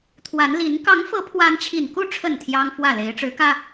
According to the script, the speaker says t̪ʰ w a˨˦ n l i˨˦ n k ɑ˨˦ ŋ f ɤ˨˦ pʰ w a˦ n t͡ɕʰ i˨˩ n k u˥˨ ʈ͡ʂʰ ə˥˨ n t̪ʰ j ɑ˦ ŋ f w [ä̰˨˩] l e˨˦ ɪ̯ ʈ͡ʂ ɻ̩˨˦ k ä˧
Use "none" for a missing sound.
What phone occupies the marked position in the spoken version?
ä˥˨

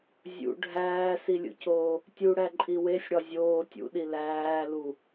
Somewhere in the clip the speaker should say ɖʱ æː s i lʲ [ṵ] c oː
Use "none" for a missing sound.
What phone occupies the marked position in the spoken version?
ṵ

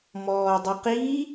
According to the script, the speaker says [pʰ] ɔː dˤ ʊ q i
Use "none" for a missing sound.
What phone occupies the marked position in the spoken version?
m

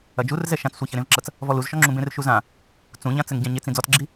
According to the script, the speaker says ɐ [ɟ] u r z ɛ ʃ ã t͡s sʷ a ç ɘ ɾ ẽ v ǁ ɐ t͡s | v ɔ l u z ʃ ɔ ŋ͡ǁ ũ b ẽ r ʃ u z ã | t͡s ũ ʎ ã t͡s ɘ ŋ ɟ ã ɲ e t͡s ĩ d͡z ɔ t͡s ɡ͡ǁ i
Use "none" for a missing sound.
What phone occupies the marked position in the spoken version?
d͡ʒ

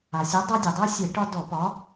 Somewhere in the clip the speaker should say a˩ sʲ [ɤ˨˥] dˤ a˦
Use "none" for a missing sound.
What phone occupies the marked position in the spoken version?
ɤ˨˥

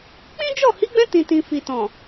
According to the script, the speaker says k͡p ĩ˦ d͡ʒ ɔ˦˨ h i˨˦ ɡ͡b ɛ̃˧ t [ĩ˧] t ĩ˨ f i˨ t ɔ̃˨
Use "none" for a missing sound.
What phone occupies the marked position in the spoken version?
ĩ˨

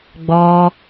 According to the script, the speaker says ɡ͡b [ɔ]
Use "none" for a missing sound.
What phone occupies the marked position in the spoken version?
ɔ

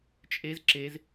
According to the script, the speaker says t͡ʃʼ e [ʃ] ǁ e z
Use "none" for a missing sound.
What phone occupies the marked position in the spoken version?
z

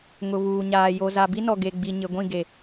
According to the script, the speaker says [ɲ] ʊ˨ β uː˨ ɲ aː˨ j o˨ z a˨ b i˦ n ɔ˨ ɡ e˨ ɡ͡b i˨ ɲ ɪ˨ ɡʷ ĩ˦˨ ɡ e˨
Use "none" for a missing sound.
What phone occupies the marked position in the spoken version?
ŋ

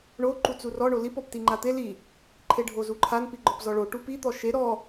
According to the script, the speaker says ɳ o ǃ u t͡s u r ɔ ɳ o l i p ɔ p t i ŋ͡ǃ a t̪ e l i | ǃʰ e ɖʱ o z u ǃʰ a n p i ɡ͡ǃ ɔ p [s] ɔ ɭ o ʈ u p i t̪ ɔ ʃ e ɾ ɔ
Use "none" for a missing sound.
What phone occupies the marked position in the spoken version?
z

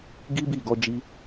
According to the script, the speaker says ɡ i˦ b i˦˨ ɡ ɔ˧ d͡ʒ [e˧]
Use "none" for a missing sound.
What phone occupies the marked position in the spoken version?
i˧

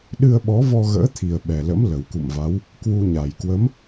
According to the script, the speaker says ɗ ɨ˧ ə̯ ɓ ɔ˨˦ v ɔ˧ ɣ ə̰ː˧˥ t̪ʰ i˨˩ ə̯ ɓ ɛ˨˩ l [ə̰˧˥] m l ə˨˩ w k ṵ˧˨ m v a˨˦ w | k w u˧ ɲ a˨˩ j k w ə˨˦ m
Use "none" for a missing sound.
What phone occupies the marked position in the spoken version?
ə̰˧˥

